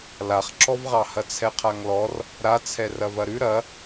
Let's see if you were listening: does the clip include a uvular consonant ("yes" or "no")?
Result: yes